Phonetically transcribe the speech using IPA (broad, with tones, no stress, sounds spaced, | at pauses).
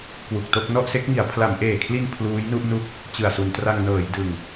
k w u˨˩ k̚ t o˥˩ k̚ n ɔ˥˩ ʔ s e˦˥ k̚ ŋ i˩˦ a̯ pʰ l a˩˦ m ʔ eː˨˩ kʰ l i˧ n pʰ l uː˦˥ j n u˥˩ ʔ n u˦˥ k̚ | t͡ɕ ɯ˨˩ a̯ s u˩˦ n t r a˧ ŋ n ɤː˩˦ j d ɯ˨˩ ŋ